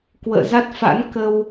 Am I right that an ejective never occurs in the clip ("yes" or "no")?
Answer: yes